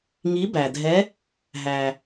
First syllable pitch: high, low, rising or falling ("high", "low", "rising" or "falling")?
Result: rising